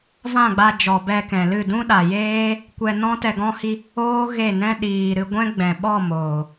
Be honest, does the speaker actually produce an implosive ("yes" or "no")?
yes